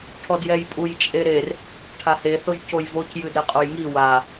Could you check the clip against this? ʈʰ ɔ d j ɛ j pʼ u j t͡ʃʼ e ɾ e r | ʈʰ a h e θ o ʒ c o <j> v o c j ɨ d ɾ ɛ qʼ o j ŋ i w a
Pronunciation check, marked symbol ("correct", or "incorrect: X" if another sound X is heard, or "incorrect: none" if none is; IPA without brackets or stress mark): correct